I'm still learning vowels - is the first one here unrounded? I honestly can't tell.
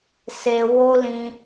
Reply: yes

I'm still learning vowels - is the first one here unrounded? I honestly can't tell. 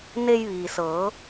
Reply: yes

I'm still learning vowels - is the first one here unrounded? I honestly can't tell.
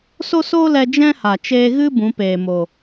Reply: no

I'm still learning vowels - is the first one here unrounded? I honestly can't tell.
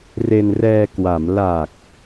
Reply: yes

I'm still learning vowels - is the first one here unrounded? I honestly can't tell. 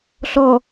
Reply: no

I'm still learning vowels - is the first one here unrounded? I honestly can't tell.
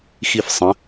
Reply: yes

